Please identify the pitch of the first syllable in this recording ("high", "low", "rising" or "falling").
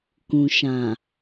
low